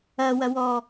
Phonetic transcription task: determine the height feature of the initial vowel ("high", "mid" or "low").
low